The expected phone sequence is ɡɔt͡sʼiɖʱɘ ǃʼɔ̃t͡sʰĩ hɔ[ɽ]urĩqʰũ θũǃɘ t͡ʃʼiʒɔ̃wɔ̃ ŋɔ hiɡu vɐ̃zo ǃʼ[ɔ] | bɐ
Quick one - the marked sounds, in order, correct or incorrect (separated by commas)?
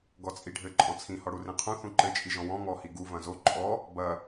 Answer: correct, correct